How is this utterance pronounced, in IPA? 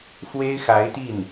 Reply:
xwe˥ɪ̯xa˧˥ɪ̯t̪i˥˩n

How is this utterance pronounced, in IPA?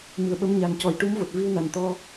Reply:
mɨ˨˩ə̯ɓə˧mɲa˨˩ncɔ˨˩˦j ʈu˧˥mvo˨˩t̚ vi˧wna˨˩nt̪ɔ˧

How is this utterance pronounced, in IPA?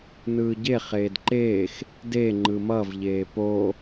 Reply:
nɯːɟe χeːdǃeːx | de ŋ͡ǃɯmʌv ʎeːpo

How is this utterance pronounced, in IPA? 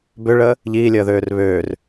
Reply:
bøɭəː | ʎiːlʲəːðøːr βøːr

